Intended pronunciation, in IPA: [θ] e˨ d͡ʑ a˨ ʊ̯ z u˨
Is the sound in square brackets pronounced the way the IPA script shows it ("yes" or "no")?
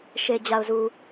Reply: no